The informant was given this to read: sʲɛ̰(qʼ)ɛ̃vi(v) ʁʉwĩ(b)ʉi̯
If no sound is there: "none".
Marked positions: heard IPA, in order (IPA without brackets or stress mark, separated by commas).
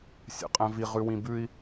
qʼ, none, b